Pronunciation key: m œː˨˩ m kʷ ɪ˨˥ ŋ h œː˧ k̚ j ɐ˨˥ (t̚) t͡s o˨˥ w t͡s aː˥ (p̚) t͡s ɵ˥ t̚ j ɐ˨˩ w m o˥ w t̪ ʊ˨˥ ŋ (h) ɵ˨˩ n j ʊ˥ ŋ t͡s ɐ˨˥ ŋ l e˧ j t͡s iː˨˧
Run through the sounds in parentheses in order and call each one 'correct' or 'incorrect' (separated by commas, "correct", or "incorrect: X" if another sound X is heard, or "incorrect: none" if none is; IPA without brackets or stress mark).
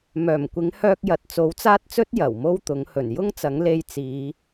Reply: correct, incorrect: t̚, correct